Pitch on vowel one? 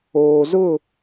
low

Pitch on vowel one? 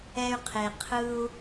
high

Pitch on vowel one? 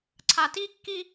low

